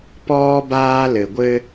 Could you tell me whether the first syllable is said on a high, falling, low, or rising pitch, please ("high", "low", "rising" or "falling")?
high